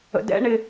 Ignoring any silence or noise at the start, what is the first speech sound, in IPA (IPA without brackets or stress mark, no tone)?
ə̰